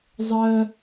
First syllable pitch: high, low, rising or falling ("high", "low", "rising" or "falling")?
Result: high